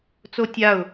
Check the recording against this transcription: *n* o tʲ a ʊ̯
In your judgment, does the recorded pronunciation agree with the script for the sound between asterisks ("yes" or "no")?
no